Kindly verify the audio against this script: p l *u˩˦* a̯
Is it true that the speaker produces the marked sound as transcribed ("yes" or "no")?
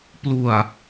no